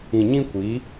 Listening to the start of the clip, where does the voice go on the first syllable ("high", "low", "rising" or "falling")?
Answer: low